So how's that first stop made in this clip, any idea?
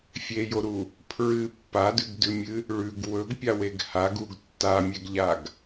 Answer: aspirated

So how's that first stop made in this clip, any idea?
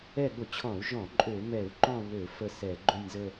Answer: implosive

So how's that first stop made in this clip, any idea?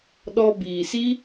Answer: implosive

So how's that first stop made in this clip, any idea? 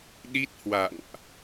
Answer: implosive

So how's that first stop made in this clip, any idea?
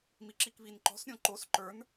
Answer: click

